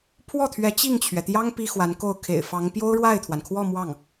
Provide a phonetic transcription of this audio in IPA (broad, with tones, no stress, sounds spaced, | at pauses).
pʰ w ɔ˥˩ t̪ʰ ɥ ɛ˧˥ t͡ɕ i˥˩ ŋ t͡ɕʰ ɥ ɛ˩ t̪ j ɑ˥ ŋ p i˥ x w a˧˥ n k o˥˩ ʊ̯ kʰ ḛ˨˩ ɪ̯ f ɑ˧˥ ŋ p j o˥ ʊ̯ ɻ w a˥˩ ɪ̯ t̪ʰ w a˩ n kʰ w ɔ˥˧ m w ɑ˥˩ ŋ